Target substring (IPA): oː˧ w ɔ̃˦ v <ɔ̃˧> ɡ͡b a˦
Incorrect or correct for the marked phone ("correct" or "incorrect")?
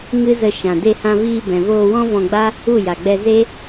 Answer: correct